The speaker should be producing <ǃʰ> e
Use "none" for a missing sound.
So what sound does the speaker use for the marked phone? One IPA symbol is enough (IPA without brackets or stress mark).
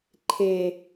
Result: ǃʰ